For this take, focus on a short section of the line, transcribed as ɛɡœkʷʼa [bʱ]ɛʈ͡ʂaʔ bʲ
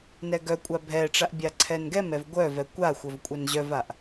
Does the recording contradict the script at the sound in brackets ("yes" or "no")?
no